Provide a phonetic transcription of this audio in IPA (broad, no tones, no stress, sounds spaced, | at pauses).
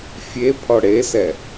fʲ e pʰ ɔ ɽ e s ɛ